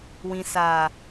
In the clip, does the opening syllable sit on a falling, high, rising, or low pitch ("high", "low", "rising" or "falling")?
low